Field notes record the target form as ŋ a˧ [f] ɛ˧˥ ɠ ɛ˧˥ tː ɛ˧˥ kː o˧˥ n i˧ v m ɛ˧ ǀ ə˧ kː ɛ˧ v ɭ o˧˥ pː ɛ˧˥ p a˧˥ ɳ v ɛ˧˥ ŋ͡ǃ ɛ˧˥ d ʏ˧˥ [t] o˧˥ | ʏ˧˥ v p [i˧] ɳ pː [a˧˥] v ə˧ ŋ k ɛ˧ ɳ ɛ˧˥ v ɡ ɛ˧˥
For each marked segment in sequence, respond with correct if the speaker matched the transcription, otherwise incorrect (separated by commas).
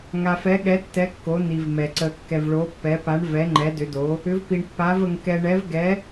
correct, incorrect, correct, correct